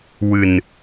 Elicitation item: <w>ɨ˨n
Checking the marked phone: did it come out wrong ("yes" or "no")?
no